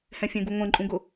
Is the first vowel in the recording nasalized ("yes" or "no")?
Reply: yes